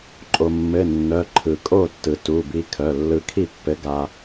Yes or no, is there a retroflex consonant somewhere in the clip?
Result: no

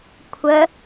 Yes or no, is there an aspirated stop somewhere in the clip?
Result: yes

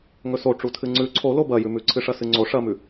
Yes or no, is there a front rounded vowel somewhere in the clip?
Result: no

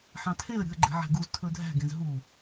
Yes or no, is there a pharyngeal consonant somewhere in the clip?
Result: yes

